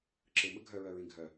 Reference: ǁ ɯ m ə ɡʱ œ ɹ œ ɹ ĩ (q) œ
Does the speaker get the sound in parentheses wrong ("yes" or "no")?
yes